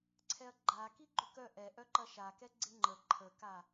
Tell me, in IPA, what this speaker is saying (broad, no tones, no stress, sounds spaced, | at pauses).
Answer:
ǀʰ ɛ ɐ̯ ɡ͡ǃ a k i ɡ͡ǃ ʏ k œ ʔ ɛ ʔ œ ǃ ɐ ʃ a k ɛ ɡ͡ǀ ɪ ŋ͡ǃ ə ǃʰ ə k a